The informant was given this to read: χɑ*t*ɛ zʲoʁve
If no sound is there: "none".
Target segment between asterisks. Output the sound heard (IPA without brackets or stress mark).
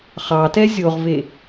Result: t